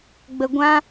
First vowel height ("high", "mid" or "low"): mid